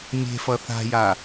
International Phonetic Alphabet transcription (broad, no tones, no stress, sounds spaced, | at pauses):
mʲ e̤ f ʌ θ a̤ j a